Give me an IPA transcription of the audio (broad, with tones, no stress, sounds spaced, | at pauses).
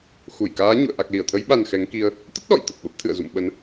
x u˧˩ j k aː˨˦ ɲ ṵ˧˨ ə̯ ʔ a˨˩ k̚ l i˧˩ ə̯ t̪ʰ ə˨˦ j ɓ a˨˩ n x ɛ˨˦ ŋ k i˧ ə̯ | t̪ ə˦˥ t̚ ɗ ɔ̰˧˨ j t̪ ə˨˩ p̚ ɓ ə˦˥ p̚ t̪ʰ ɨ̰˧˨ ə̯ z ṵ˧˨ m ɓ ə˨˦ n